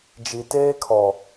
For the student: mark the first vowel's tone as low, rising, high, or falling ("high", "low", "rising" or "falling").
low